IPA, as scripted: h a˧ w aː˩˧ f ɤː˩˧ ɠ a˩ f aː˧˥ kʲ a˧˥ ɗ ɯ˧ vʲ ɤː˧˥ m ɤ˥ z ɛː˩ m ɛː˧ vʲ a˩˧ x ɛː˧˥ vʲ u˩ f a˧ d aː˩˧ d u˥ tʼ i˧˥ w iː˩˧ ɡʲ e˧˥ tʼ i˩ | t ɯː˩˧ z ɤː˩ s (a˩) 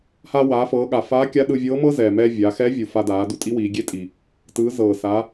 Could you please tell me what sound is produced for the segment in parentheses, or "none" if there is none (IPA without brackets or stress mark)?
a˩˧